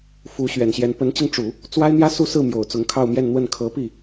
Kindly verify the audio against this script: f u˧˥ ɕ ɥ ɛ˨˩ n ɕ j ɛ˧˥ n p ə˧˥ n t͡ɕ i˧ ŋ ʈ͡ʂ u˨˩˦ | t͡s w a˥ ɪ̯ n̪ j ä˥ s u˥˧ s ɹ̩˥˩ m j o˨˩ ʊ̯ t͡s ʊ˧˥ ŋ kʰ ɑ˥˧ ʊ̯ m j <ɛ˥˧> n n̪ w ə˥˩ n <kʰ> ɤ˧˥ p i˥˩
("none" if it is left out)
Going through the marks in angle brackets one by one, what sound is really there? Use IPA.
ɛ˥˧, kʰ

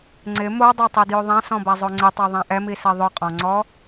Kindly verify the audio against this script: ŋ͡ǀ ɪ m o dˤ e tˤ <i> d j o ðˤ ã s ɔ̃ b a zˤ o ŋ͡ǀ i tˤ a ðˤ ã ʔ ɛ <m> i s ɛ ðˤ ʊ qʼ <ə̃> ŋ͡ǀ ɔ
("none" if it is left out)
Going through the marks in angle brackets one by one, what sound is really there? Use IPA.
i, m, ɔ̃

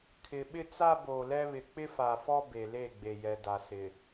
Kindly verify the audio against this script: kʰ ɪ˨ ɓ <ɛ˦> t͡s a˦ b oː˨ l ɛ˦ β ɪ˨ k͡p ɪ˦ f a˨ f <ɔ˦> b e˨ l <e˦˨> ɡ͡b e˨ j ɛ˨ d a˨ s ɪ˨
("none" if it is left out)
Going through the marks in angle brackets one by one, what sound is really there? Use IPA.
ɪ˦, ɔ˦, e˦˨

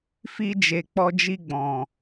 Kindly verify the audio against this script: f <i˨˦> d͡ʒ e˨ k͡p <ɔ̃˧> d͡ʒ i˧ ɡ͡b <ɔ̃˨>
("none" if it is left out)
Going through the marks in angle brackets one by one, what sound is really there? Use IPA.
i˧, ɔ˧, ɔ̃˨

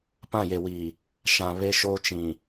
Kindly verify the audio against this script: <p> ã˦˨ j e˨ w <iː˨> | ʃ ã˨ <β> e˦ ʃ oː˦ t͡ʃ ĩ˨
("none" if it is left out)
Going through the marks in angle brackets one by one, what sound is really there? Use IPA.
p, iː˨, β

